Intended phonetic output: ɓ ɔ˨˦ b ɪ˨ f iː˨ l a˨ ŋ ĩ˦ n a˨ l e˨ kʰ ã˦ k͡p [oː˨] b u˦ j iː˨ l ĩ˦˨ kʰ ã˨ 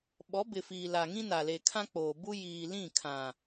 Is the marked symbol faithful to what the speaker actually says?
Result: yes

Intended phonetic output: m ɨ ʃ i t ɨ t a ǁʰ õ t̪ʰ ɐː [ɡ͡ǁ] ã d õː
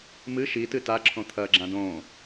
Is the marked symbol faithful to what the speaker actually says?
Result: yes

